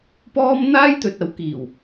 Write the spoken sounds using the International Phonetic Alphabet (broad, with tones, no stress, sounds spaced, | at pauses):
p ɔː˥ m n̪ aː˥ j t̪ ɵ˨ t̚ ɐ˨˥ w k iː˨˩ w